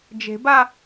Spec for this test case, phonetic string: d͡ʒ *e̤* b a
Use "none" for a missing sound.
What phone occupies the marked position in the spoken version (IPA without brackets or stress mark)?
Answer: e̤